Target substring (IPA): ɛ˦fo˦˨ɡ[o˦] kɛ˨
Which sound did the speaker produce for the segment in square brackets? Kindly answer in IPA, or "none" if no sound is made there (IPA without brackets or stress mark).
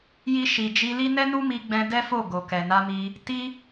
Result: o˨